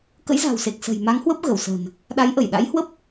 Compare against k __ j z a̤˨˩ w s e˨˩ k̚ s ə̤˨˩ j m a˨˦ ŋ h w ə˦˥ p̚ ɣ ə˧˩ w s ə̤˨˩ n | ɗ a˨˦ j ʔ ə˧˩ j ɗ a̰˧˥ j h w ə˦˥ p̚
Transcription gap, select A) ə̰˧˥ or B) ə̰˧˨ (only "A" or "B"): A